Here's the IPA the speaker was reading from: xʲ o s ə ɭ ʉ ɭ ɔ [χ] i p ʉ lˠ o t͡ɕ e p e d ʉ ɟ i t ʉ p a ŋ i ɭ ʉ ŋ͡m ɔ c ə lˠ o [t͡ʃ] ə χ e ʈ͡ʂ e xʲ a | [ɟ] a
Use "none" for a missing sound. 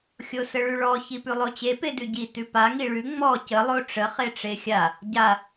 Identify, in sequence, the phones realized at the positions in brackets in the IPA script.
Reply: ç, ʈ͡ʂ, ɟ

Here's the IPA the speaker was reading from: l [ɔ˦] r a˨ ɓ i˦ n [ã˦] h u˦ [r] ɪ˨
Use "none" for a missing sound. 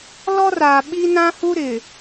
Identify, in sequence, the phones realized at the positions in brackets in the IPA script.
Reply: ɔ˦, ã˦, ɾ

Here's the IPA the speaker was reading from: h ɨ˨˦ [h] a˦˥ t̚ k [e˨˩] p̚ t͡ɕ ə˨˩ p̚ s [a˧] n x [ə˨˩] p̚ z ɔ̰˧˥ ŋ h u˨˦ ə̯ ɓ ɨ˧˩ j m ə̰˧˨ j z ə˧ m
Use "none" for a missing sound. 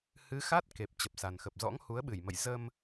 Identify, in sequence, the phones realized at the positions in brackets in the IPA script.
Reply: x, e˨˩, a˨˩, ə˨˩

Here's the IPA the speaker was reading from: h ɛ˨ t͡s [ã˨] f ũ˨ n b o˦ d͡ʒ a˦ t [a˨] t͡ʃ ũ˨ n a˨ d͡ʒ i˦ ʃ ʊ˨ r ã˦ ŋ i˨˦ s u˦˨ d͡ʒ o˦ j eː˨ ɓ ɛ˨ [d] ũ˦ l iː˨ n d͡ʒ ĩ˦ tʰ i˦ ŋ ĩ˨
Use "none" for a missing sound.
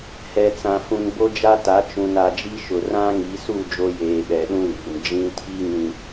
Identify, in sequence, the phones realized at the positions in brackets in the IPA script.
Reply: ã˨, a˨˦, ɗ

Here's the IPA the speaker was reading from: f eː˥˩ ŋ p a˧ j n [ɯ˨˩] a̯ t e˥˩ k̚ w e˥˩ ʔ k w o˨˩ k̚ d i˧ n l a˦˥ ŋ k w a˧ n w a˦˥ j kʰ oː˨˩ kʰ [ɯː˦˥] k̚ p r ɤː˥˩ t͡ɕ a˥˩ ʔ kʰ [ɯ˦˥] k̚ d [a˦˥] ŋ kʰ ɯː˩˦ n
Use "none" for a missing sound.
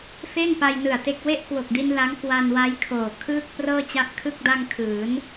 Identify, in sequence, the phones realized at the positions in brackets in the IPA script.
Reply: ɯ˨˩, ɯː˥˩, ɯ˥˩, a˧

